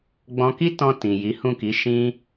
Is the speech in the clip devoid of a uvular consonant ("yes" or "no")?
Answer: yes